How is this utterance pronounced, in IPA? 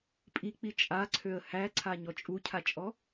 pʼik͡pi t͡ʃʼaǀʰøə̯ hæǀʰaɲɔ t͡ʃʼucʰat͡ʃʼɔ

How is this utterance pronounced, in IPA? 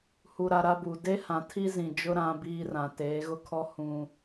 hu˨ ɾa˨ ɾa˦bu˨ de˦ hã˨tʰi˦zĩ˨d͡ʒʊ˦ ɾã˦ biː˦rã˨ teː˨˦ɣʊ˦kʰɔ˦ hũ˦

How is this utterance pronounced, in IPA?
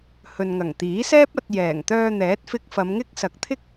hɵ˨nŋɐ˨˩ŋt̪iː˨˥sɛː˥p̚ ɐ˧t̚ jɛː˨˩ŋ t̪œː˧ n̪ɛː˨˥t̚fɪ˧k̚fɐ˨˧mŋɪ˥k̚ sɐ˨k̚t̪ʰɪ˥k̚

